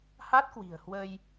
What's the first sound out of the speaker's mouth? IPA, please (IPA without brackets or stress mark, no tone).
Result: h